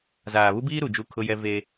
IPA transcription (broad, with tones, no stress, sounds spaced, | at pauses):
z aː˨ β u˦ b iː˦ ɾ u˨ d͡ʒ u˦˨ kʰ ʊ˦ j ɛ˦ v e˦